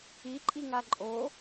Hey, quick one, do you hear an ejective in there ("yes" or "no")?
yes